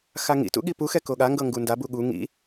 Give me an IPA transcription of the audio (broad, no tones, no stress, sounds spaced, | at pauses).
x a ŋ ḭ t ṵ ɠ i p u x ɛ k o ɠ a ŋ ɡ ɤ ŋ ɡ u n d a b u ɠ u ŋ ḭ